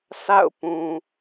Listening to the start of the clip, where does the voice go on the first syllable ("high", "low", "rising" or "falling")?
falling